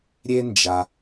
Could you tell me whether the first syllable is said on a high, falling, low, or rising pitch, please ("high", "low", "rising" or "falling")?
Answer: high